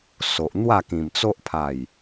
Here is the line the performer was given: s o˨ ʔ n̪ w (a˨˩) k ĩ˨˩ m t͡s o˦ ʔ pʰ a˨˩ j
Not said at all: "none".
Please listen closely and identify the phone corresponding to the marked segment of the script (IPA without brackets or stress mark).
a˥˧